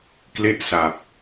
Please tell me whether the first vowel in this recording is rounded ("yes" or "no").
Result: no